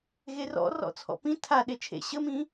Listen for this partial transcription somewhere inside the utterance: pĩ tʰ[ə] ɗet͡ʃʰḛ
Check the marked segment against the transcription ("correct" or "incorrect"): incorrect